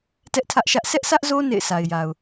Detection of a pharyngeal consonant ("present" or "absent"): absent